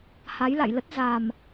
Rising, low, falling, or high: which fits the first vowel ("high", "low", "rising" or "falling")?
rising